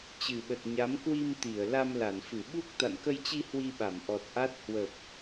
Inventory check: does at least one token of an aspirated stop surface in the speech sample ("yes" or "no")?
no